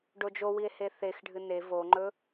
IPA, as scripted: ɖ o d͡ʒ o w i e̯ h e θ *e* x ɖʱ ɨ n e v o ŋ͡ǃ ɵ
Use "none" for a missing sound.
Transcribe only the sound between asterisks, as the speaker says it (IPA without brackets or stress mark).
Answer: e